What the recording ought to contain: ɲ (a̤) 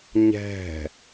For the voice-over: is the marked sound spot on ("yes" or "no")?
no